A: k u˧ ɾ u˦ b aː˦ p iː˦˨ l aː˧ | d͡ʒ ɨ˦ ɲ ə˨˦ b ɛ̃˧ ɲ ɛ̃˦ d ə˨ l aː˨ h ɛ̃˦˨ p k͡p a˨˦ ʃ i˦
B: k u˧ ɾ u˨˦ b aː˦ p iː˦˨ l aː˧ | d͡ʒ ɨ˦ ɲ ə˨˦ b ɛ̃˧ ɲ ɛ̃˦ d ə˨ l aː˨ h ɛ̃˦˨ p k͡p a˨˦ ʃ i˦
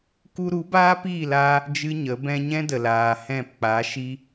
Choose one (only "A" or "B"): B